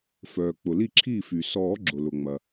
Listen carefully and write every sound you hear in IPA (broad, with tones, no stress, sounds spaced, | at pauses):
f œː˩ k͡p ʊ˩ l i˥˩ ǁʰ iː˥˩ f y˩ s ɔː˨˩˦ ɡ͡ǁ ʊ˩ l ʊ˩ ŋ͡m ɐ˩